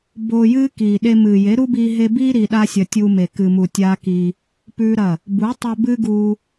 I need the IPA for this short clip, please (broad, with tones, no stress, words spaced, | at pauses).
boː˧jɨː˦kiː˨ɗe˧ mɨː˨je˨˦ɾu˦biː˧ ɦe˧biː˦ ɾi˧ɗa˦sʲɐ˧ tʲuː˧me˨ kɨ˨mu˨ tʲaː˦kiː˧ | pʉ˦ɾɐ˦˨ | bu˨˦tˤɵ˧ bɨ˦ɡuː˧